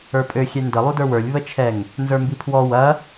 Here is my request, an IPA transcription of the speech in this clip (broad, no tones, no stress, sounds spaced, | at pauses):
ə˞ pʼ ø xʲ ɛ n d ə lˠ u d ə˞ w ə˞ lʲ β ə t͡ʃʰ ɛ ŋ | n z ə˞ m b i pʰ w ɔ w ɐ